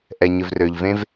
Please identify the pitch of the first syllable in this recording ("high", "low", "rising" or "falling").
low